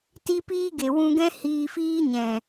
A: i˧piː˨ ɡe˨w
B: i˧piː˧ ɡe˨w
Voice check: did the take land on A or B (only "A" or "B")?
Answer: B